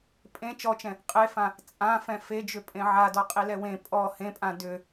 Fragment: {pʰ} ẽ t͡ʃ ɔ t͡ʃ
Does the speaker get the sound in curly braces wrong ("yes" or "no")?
yes